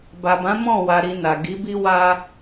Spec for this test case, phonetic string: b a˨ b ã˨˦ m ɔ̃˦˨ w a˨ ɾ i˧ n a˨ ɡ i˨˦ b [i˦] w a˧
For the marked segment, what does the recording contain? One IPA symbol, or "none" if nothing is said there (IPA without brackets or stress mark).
i˦